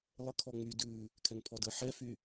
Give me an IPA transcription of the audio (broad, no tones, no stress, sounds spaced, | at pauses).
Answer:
lˠ ə kʰ ɔ ŋ͡m y d ʉ | kʰ ɛ ŋ pʰ ɔ d ə ħ ɛ f y